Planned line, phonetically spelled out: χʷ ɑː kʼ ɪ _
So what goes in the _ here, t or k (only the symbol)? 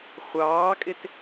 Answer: t